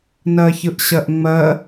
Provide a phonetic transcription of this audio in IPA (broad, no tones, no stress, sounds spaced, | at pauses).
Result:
n ɜ ç ɯ ʔ ɕ ɜ ʔ ŋ͡m ɜ